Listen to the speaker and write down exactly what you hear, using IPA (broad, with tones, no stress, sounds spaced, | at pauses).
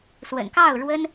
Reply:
s w ə̰˨˩ n k ɑ˥˩ ʊ̯ ɻ w ə˥ n